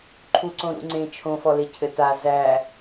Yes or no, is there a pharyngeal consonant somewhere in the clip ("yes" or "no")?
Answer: no